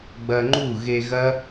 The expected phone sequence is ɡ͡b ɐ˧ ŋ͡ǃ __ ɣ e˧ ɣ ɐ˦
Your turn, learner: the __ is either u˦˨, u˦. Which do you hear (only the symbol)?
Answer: u˦˨